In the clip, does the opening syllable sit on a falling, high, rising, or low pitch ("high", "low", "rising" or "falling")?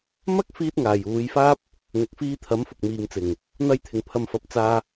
high